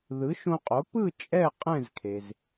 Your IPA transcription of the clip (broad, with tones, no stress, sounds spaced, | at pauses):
ð ɯ˩˥ ʃ õ˧ qʼ o˩˥ p ɯ˥˨ t͡ʃʼ ɛ˥˨ qʼ ɛ̃˥˨ z kʰ e˩ z